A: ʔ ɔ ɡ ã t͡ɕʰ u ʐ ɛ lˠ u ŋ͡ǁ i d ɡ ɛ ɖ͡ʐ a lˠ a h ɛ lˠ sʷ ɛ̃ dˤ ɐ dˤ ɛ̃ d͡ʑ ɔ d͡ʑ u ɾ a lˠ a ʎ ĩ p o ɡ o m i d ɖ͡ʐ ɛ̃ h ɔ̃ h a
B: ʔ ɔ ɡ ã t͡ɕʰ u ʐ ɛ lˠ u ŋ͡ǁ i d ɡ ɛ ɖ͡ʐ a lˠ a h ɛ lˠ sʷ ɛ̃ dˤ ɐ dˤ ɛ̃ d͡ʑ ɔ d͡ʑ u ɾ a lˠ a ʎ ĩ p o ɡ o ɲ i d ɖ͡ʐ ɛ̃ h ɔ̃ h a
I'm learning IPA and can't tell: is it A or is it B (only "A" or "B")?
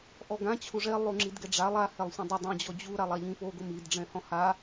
A